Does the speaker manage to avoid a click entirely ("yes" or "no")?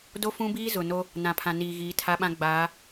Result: yes